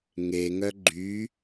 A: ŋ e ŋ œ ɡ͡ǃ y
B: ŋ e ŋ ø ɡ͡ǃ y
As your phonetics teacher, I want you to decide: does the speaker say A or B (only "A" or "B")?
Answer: A